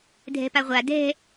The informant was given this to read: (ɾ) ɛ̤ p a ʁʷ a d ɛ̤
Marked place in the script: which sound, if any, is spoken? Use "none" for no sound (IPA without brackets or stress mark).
dʱ